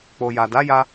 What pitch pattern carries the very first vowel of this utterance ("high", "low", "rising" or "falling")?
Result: low